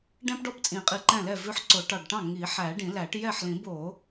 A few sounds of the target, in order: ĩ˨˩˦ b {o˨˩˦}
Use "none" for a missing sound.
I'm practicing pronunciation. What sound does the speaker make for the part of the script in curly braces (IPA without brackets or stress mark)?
o˨˩˦